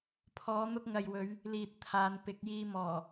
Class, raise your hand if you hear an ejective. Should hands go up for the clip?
no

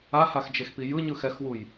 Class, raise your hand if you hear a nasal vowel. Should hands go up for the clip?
no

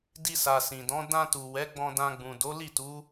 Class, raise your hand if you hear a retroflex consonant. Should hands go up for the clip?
no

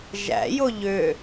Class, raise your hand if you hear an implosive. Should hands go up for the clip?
no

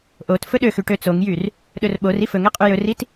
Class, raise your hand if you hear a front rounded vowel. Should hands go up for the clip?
yes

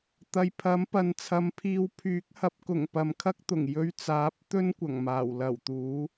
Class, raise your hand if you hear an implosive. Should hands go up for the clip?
no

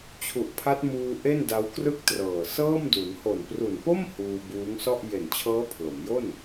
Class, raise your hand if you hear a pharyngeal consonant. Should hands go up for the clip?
no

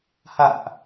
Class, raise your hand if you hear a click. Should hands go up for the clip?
no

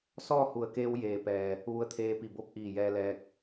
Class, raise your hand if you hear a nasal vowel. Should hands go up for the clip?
no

